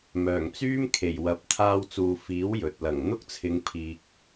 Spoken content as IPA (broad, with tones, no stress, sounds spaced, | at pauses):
m œː˨˩ ŋ t͡s yː˥ m kʰ e˨˩ j w ɐ˨˥ p̚ t̪ʰ aː˧ w t͡s uː˨ f iː˨˥ w j ɵ˨ t̚ l ɐ˨˩ ŋ n̪ ʊ˥ k̚ t͡sʰ ɪ˨˧ ŋ pʰ iː˨ k̚